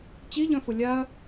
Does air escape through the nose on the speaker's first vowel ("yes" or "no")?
no